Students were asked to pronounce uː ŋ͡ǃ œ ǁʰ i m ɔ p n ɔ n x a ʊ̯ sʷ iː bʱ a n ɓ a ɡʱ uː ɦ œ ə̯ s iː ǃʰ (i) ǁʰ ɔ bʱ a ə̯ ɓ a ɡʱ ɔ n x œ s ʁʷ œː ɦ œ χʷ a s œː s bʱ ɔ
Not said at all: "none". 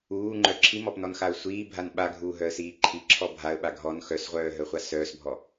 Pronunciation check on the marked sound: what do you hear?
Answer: i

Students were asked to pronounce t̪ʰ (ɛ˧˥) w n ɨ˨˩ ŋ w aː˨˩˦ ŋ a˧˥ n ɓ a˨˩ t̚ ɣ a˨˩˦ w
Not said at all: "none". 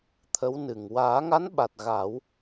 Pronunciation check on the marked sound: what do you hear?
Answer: ə˧˥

